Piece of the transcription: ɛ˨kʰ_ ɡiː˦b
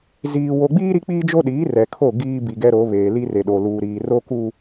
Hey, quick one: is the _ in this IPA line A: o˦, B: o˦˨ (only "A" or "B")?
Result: B